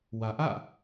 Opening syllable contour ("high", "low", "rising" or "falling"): low